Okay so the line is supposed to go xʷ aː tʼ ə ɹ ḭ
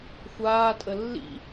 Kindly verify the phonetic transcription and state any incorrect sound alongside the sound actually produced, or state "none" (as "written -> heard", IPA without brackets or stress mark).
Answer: ɹ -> lː